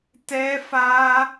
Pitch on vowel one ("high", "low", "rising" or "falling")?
high